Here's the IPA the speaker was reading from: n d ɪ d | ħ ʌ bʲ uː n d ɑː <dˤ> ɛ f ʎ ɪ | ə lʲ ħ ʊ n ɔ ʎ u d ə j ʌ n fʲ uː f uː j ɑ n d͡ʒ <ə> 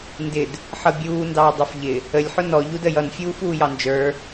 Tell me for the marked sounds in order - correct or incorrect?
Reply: correct, incorrect: ə˞

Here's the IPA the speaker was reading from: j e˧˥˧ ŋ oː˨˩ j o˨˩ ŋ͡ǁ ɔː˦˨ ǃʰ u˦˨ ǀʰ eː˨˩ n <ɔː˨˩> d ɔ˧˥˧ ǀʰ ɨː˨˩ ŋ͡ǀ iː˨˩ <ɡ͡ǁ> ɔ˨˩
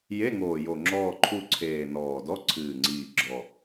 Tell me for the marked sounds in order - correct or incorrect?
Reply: correct, correct

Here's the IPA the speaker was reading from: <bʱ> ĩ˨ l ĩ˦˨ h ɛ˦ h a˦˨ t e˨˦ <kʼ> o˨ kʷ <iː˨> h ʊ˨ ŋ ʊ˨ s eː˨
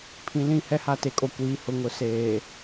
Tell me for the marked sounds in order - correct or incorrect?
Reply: incorrect: pʰ, correct, correct

